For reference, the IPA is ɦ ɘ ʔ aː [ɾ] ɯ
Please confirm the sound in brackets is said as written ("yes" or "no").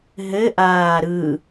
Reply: yes